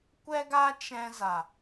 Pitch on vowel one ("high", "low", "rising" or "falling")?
high